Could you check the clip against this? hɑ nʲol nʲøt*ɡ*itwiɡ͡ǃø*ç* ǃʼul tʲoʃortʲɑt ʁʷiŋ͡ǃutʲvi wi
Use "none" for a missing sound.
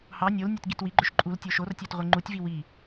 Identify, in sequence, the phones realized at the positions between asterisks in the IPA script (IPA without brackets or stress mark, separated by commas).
ɡ, ʃ